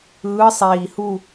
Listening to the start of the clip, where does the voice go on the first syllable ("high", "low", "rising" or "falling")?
rising